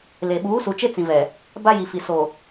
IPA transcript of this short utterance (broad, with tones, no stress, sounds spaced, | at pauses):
l e˨ ɓ uː˨˦ s u˨ t͡ʃ e˦ t͡s ĩ˨ v ɛ˨ | b a˦ j i˨ f i˨ s o˨